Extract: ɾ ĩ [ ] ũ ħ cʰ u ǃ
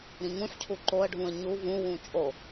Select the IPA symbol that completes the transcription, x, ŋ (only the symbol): ŋ